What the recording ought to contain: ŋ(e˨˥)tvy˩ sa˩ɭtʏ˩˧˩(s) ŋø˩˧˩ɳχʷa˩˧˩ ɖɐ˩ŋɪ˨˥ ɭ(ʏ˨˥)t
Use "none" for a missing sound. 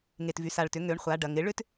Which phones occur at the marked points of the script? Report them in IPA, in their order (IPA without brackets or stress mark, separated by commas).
e˩, none, ʏ˨˥